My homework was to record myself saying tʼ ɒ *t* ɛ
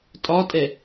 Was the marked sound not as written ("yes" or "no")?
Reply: yes